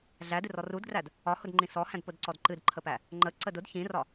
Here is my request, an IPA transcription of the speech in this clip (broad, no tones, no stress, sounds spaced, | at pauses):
ɮ æ d ɨ r ɔ r u d ɡ r æ d | ɒ h ʊ d ŋ͡ǃ ĩ s ɔ h æ̃ d p ʊ d ǀ ɔ d ǃ ɨ d ǃʰ ə p æ | ŋ͡ǃ ə ǀ ə d ʊ d ç ĩ r ɒ